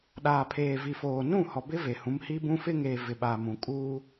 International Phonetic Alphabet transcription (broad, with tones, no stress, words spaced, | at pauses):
ɗaː˨pʰeː˨vi˨foː˨ nũ˦˨hɔ˨bɪ˦ ve˨hũ˨˦mhi˦bũ˦ fɪ˦ŋeː˨ vɪ˨ɓaː˨mũ˨ kʼuː˦